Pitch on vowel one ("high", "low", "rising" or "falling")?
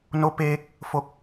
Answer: rising